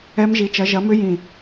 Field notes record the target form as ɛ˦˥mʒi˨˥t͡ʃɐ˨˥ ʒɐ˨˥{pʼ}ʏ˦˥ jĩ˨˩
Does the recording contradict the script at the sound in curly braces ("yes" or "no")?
yes